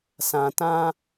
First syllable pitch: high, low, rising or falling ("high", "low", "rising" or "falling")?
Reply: low